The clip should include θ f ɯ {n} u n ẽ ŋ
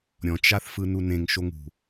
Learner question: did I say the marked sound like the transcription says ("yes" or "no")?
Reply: yes